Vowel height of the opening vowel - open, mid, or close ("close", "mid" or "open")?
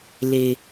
mid